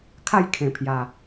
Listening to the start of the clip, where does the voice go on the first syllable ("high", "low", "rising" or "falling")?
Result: falling